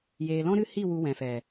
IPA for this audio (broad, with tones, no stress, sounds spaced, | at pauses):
j eː˨ l ɔ̃˦ ɾ ɨ˦ h i˦˨ w u˧ w ɛ̃˨ f ɛ˨